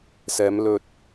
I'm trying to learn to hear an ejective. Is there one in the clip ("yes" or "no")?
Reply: no